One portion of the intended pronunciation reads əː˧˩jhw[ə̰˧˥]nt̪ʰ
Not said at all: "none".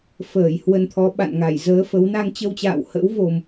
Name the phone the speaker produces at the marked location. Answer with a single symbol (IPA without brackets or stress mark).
ə˧